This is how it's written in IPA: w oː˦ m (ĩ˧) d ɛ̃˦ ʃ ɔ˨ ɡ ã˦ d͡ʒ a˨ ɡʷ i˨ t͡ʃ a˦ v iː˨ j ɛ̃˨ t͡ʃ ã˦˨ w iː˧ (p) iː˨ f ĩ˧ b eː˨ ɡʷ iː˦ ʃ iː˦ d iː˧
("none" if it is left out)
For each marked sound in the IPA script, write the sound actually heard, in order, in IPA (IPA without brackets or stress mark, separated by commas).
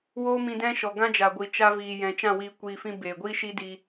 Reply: ĩ˧, kʷ